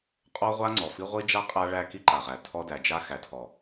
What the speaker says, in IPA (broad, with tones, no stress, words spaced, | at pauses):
qʼɔ˦ʁʷa˦ ŋ͡ǀɔ˨fi˦ ʁʷi˦d͡ʒa˦ qʼa˦ɭæ˦ ki˦ǃa˨ʁæ˨ tʰɔ˦ dæ˨d͡ʒa˦ xæ˨tʰɔ˨